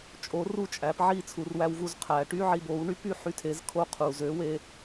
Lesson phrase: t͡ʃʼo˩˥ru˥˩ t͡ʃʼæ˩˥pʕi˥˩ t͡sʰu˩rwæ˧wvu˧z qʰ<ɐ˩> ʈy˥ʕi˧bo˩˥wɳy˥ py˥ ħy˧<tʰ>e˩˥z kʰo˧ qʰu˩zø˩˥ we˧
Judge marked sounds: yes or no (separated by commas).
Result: no, yes